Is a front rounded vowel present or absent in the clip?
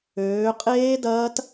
present